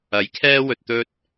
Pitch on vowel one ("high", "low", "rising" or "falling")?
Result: rising